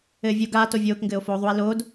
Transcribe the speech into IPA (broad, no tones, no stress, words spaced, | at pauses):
ɘːvʲo ɡaːt ovʲoːkŋɡɘːo̯ foːðˤue̯ loːd